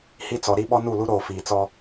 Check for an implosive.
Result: present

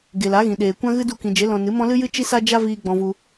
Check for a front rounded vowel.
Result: absent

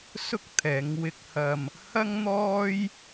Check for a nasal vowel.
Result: absent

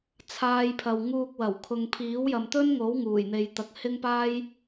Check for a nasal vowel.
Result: absent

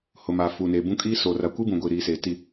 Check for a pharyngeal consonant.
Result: absent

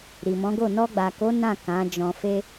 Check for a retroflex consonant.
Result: absent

